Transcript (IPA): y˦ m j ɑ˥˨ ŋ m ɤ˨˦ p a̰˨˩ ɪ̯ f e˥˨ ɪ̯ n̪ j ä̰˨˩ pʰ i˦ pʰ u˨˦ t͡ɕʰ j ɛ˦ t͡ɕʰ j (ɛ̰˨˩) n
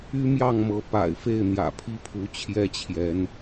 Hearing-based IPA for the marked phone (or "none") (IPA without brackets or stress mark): ɛ˨˦